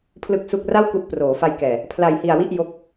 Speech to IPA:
pʰ l ɯ˥˩ k̚ s u˥˩ k̚ r a˥˩ w k u˦˥ ʔ p r oː˩˦ f a˧ j k ɛː˨˩ | pʰ l a˧ j h i˧ a̯ w i˥˩ ʔ j o˦˥ k̚

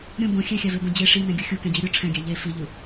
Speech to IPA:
ɾʲ õ b õ xʲ ɛ xʲ a v e b õ d͡ʑ e ʂ i n ɛ̃ ɡʲ u xʲ u k ɛ̃ d͡ʑ ɯ ɾʲ u ʈ͡ʂʰ ɛ̃ ɡʲ a ʎ e f i ʎ ɯ

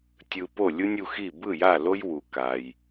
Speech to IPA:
tʲ ɯ˧ p o˦˨ lʲ u˦ nʲ u˧ x i˦˨ b ɯ˦˨ j a˦˨ l o˦ j w u˧ k a˧ j

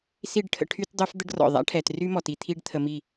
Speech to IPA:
s i˦˨ ɖ ʈʰ ə̰˧ ʈʰ y˦ t dˤ ø˦ f d̪ ə˦ ɖ r ɔ̰˨ ðˤ a̰˦ ʈʰ ɛ˨ t r y˦ m ɔ˨ t i˧ t̪ʰ i˦ ɖ t̪ʰ ə˧ m i˦˨

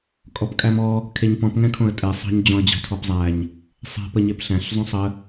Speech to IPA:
kʼ ɔ p kʼ æ m ɔ | kʰ e ɲ p ɔ̃ p ŋ ɛ̃ kʰ õ ə̯ tʼ ɛ sˤ ɑ̤ ɲ d͡ʑ ɔ̃ ə̯ d͡ʑ ɑ̤ tʰ ɔ p zˤ æ ɲ | sˤ e̤ p ə ɲ e p ɬ æ̃ ɬ zˤ õ sˤ ə

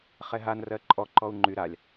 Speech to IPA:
χ ɛ ɦ a n r ɜ ǃʼ ɔ ǃ ɔ u̯ ŋ͡ǃ y ɾ a lʲ

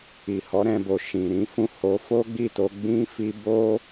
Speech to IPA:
i˨ h ɔ˨˦ ɾ ɛ̃˧ b o˨ ʃ ĩ˨ ɾ ĩ˨˦ f ũ˦˨ h o˨˦ f o˦ ɡ͡b i˦˨ t o˧ ɡ͡b ĩ˧ f i˧ b o˦

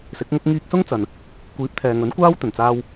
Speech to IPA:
s ɪ˨˥ k̚ ŋ ʊ˥ k̚ ŋ iː˧ k̚ s ʊ˥ ŋ t͡s ɐ˨ n | kʷ iː˨˥ p̚ t̪ʰ ɛː˨ ŋ ɵ˨˥ n kʷ aː˥ w t̪ ɵ˨˩ n t͡s aː˧ w

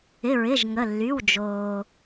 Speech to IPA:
ɪ˩˧˩ ɹ ɪ˩˧˩ ʒ ŋ ə˩˧˩ lː y˩˧˩ w d͡ʒ oː˩

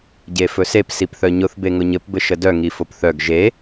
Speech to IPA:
ɟ e f ɵ s e p s i p θ œ ɲ ʊ θ b e ŋ ʊ ɲ ɘ p b ɘ ʃ ə d œ ŋ i f o p θ œ ɡ ʒ e

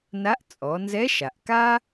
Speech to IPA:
n a˧˥ ʔ t͡sʼ ɔ˩˧ n z ɛ˧˥ ʃ a˩ ʔ k a˥

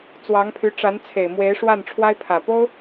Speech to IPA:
t͡s w ɑ˧˥ ŋ pʰ y˧˥ ʈ͡ʂ a˧˥ n t͡sʰ e˨˩ ɪ̯ m w e˧˥ ɪ̯ ʂ w a˥˩ n ʈ͡ʂʰ w a˥ ɪ̯ pʰ ä˨˩ p o˥ ʊ̯

